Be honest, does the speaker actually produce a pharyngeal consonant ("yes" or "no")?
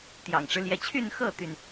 no